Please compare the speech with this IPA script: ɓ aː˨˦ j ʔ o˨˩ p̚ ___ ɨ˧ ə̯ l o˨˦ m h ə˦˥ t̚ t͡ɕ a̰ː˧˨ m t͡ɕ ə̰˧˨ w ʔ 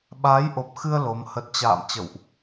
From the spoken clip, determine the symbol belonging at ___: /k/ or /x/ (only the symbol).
x